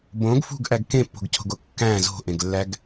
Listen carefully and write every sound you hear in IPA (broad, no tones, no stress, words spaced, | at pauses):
bõɡ fṳɡʔæɡ kẽpːo̤ɡcʰo̤ɡo kːæ̃ zo̤ʔẽɡlːæɡ